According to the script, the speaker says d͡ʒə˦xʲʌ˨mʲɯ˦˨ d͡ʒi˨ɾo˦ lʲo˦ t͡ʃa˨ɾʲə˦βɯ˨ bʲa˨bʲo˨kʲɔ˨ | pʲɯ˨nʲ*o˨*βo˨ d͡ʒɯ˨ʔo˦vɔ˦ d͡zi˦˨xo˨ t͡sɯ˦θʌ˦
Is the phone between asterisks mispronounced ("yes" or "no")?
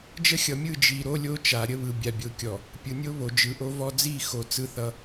yes